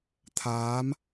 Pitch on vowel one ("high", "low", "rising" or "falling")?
rising